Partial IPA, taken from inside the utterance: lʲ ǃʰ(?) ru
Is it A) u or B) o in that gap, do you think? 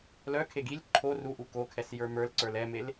B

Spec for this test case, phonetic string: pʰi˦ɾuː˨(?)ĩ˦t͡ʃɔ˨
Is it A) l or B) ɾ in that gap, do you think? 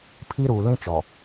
A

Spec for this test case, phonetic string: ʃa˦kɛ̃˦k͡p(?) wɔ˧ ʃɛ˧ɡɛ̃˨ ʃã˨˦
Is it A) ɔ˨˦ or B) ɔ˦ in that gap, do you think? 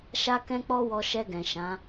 B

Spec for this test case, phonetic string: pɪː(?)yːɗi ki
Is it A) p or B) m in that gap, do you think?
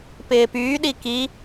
A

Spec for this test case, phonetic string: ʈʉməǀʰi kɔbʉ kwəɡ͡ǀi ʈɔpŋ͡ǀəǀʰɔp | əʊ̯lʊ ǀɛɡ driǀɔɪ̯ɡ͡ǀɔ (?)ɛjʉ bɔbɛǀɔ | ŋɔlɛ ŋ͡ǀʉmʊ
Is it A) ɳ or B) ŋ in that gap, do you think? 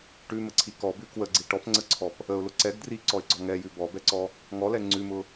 B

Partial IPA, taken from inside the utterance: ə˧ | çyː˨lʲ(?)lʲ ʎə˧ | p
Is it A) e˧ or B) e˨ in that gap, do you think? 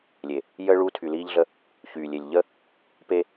B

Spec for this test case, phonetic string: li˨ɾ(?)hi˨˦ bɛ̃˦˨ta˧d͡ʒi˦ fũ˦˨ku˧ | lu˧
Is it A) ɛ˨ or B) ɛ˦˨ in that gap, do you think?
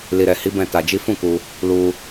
A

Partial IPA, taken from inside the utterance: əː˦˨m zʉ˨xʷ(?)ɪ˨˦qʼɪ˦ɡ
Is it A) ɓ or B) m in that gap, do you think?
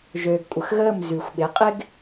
A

